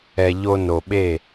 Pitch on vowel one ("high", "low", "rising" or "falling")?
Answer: low